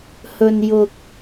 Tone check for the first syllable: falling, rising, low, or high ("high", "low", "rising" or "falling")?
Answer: low